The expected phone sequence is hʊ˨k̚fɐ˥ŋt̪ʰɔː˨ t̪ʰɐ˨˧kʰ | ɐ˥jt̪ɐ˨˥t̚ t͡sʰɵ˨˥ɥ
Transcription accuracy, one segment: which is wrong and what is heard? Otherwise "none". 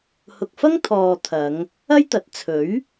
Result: kʰ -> ŋ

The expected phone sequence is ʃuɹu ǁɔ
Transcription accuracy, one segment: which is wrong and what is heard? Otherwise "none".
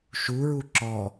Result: none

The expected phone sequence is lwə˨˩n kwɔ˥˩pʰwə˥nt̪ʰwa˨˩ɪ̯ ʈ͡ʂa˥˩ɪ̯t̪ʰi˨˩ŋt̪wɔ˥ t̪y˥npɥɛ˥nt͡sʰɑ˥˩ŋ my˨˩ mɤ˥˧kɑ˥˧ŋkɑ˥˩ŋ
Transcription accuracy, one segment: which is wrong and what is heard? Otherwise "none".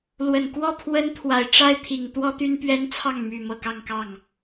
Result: none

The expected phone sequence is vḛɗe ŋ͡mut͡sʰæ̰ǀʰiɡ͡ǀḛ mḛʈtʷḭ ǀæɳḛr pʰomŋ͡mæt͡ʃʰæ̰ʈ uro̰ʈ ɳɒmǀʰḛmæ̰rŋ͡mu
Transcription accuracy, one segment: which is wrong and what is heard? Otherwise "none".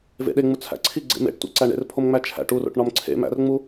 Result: none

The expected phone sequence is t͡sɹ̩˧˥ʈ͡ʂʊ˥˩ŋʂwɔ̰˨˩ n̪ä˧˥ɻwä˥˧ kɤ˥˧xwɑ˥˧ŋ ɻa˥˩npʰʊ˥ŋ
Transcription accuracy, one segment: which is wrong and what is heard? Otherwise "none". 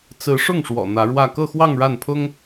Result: ʈ͡ʂ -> ʂ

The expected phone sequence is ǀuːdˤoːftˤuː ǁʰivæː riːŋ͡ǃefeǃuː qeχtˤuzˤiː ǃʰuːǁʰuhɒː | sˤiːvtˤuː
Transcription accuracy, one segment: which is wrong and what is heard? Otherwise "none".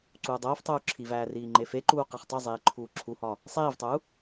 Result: none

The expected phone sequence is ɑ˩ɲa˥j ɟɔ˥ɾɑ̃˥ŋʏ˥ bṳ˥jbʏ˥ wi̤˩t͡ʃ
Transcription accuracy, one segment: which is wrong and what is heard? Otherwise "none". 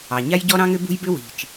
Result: none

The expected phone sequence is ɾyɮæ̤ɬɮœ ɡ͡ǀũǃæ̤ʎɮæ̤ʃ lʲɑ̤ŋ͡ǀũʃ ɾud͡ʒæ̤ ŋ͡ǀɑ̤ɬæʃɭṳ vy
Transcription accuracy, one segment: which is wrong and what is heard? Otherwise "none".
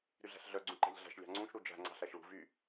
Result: none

